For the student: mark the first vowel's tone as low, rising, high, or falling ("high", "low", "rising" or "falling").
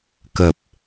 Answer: low